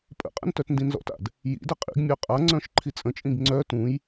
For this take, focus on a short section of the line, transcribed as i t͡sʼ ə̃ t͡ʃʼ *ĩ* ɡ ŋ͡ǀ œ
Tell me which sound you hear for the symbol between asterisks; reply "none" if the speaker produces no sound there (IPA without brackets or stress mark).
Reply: ĩ